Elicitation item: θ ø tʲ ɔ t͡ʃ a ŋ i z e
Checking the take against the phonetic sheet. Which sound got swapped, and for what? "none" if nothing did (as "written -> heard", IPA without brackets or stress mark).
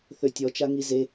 none